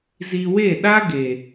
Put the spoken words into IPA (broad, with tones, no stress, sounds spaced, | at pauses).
z iː˧ w e˦˨ ɗ a˦ ɡ eː˨